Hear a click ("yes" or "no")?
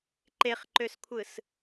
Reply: yes